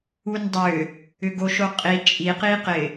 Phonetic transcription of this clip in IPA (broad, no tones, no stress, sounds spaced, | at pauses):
u n dˤ ʏ | ʏ ɡ o ʃ o qʼ i t͡ʃʼ i q i q ɪ